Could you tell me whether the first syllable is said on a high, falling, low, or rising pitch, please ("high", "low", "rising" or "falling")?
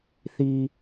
low